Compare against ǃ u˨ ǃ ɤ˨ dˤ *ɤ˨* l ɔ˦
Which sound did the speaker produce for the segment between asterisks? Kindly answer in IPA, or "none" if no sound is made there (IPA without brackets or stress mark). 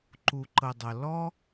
ɤ˨